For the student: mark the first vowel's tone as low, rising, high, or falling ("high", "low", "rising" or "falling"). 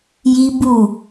high